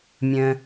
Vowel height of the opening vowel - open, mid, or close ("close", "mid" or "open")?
mid